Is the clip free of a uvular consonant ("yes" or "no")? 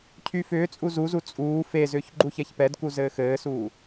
yes